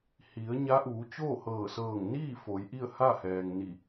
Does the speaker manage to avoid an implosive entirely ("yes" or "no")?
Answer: yes